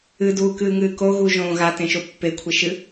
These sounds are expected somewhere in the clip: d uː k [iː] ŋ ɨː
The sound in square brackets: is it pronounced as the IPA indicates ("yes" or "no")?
no